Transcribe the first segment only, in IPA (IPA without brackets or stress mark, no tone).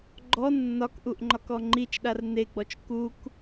ɡ͡ǃ